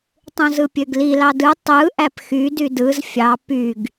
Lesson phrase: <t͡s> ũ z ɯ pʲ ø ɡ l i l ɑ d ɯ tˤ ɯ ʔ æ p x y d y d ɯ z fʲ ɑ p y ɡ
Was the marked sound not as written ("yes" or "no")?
yes